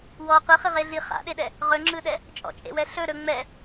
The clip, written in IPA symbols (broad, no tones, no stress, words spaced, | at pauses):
wɔ qɯχiʁe ɮi χa̰ɗeɗɛ | ʁɵŋ͡ǁɯɗɛ | t͡ʃʼɔ̰t͡ʃʼḛwɛ ɬɵ ɾɵ ŋ͡mɛ